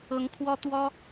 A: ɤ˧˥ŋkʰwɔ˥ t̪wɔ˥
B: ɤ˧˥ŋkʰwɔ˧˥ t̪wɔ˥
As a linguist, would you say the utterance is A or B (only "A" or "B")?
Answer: A